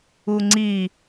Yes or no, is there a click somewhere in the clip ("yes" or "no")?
yes